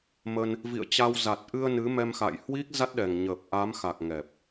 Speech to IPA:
mə˧n | vḭ˧˨ə̯t͡ɕa˧w za˨˩t̚ʔɨ˧ə̯ nɨ˨˦mɛ˧m xa̰ː˧˨j hwi˦˥k̚za˦˥t̚ɗɛ˨˩ŋɲəː˨˩p̚ ʔa˨˦mxa˨˩k̚ ŋɛ˨˩p̚

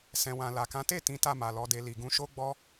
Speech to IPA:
sɛ̃˨wã˨la˨kã˨˦ te˦˨ tĩ˨˦ta˦˨ma˨ lɔ˨˦de˧ li˨ɡũ˧ ʃo˦ɡ͡bɔ˦

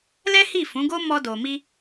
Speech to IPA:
lɛ˦hi˦˨ fũ˨˦ɡo˦ mɔ˦do˧mi˦

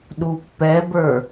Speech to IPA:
ɗupːɛbə˞

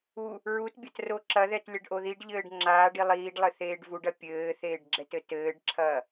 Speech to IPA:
u | ɹutbʲɐt roǁɐðɛt lʲɐɖʔoðiɖʎɘːɖ ŋ͡ǁaːɖi lˠiːɖlˠɘ θeːɖvuɖɐ pʲɘːθeːɖ ɡ͡ǁɛtɘtɘːɖǁʰɐː

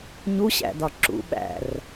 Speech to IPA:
ɲuɕæ̰dɒ ǁṵ ɓæ̰r

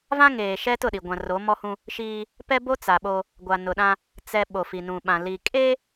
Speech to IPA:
vã˦ŋeː˨ ʃɛ˦tʊ˦˨ɗi˨ ɡʷã˨ro˨˦mɔ˦hũ˦ | ʃiː˦ | pɛ˦bo˦ t͡sa˨ɓo˦ | ɡʷa˨nʊ˨ɗã˦ | t͡sɛ˨ ɓo˨fi˨nũ˨ɓã˨ li˨ kʼeː˦

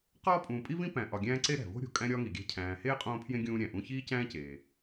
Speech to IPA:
qɒː˥ pʼũː˨pʼi˦vĩ˦ pæ̃˨ ʔɒ˨ɡʲæ̃ː˦ ǀe˥ɾæ̤˩vo̤˥ ɾʲo̤˩ kʼæ̃˥ɾʲɒː˥ŋi˩ɡʲæ̤˦ cʰæ̃ː˨ heː˥qʼõː˦pʰjẽ˦ ɡʲũː˦ɾʲæ̃˩ʔũ˦ çiː˦cæ̃ː˦ceː˩

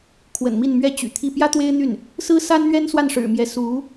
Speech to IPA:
kʰwə̰˨˩nmi˥˩nmɥɛ˥ t͡ɕy̰˨˩t̪ʰi˥˩ pjä˥ t̪we˥ɪ̯n̪y˥˩n | sɹ̩˥sa˥nn̪ɥɛ˥n swa˥˩nʂɻ̩˨˩mjɛ˧˥ su˧˥

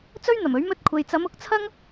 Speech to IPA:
t͡sɵ˥ɥn̪ɐ˨˩mɵ˨˥ɥ mɵ˧t̚kʷʰe˨jt͡sɐ˨˧m ʊ˨˥k̚t͡sʰɐ˥ŋ

